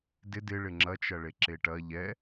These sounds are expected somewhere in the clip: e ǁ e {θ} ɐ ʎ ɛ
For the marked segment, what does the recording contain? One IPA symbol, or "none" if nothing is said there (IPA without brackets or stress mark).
ʈ